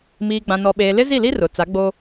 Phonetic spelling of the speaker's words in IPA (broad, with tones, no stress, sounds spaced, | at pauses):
m iː˨ ɡ͡b ã˨ n ɔ˨ ɓ eː˨ l ɪ˦ z i˦˨ l i˦ r ʊ˨ t͡s a˨˦ ɡ͡b o˦